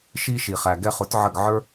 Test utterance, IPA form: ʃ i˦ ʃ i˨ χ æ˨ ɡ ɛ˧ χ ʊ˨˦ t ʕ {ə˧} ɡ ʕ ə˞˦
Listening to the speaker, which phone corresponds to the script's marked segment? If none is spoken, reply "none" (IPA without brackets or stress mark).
ə˦˨